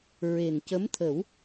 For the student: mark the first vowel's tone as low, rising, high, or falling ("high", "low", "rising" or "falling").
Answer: low